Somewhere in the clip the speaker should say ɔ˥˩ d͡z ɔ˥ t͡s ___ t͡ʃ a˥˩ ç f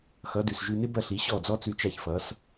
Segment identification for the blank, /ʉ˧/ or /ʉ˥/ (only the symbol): ʉ˧